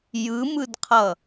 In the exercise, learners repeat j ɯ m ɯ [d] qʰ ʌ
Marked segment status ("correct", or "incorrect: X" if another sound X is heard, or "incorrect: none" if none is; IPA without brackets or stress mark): correct